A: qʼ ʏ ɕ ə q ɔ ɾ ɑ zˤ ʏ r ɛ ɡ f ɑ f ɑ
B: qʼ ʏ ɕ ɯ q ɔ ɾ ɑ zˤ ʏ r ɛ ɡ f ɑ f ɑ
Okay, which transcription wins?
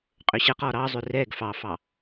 A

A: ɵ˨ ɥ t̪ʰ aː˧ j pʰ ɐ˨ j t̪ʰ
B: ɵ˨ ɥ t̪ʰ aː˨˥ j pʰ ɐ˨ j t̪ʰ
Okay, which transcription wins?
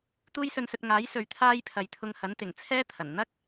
A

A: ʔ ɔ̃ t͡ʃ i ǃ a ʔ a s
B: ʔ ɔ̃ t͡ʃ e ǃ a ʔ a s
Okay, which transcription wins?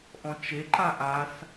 B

